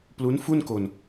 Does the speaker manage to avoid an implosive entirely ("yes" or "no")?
yes